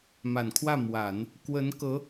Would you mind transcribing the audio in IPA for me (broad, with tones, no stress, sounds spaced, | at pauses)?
m a˨˩ n kʰ w ä˥˩ m w a˨˩˦ n | k w ə˧˥ n k ɤ˧˥